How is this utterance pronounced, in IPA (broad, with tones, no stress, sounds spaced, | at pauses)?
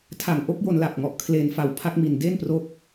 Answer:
tʰ a˨˩ ŋ ʔ o˦˥ k̚ j o˧ n l a˨˩ p̚ ŋ ɔ˨˩ ʔ kʰ l e˧ n f a˨˩ w pʰ a˦˥ k̚ m i˨˩ n d e˥˩ n p r o˦˥ k̚